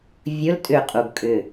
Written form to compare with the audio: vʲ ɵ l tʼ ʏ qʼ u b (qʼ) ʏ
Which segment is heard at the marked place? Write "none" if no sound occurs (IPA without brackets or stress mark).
kʼ